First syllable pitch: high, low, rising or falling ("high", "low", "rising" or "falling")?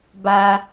high